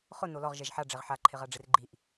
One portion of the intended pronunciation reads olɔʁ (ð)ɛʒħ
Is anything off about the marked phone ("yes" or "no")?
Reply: yes